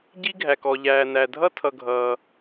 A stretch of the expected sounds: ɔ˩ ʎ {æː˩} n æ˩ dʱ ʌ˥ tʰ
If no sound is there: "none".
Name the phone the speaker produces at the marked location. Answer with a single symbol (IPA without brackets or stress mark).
æː˩